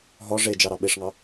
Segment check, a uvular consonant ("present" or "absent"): absent